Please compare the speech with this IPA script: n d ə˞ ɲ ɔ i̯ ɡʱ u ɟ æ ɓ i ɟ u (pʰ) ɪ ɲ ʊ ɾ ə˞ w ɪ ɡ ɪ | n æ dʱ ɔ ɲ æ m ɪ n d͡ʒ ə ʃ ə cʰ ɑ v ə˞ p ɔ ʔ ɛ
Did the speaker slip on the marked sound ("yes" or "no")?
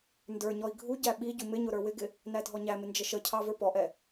yes